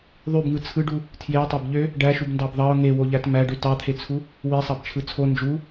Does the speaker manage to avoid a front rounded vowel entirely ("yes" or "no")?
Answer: no